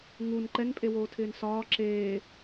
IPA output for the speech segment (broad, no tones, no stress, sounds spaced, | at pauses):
ŋ u n ǃ ɛ n pʼ e w oː tʰ ɪː n s ɒː ǁ eː